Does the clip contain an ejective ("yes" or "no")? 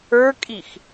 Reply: yes